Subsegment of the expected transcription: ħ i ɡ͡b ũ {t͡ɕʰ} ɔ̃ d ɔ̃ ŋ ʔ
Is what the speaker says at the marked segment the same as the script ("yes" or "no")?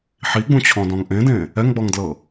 yes